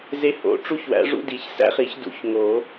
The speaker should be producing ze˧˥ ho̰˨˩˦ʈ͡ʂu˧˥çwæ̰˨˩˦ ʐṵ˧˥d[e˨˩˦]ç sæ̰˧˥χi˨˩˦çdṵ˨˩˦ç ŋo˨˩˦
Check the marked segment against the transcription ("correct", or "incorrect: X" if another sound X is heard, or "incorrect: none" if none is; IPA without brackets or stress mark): incorrect: i˨˩˦